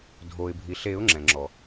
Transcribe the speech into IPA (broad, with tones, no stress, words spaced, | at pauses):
dʱo˩ɪ̯bʱi˩ɬe˨˩˦ʊ̯ ŋ͡ǁɛ̃˩ŋ͡ǁɔ˩